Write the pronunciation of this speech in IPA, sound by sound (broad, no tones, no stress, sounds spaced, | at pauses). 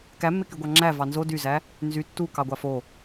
k æ mː e k y ɡʷ ɑ ŋ͡ǁ æ v ɑ n z o d y z æ | n z y tː u k ɑ ɡʷ ɑ f o